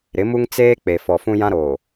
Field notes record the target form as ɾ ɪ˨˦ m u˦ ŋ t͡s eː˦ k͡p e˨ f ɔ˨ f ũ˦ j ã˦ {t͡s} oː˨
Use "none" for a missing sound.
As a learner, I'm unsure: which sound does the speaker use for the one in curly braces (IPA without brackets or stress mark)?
ɾ